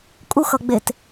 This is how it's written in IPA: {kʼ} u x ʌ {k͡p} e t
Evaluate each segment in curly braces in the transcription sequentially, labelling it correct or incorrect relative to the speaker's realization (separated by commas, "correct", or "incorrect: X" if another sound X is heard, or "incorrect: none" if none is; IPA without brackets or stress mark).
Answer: correct, incorrect: ɡ͡b